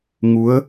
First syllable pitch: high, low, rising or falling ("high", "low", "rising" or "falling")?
rising